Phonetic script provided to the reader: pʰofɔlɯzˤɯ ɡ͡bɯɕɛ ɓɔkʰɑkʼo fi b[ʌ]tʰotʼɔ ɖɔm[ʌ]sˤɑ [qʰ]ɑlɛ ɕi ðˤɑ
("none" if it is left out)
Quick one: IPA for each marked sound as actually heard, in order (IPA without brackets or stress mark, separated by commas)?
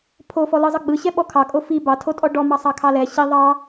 ɑ, ɑ, kʰ